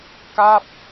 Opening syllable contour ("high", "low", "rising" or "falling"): falling